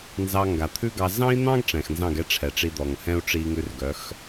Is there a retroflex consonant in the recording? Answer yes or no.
yes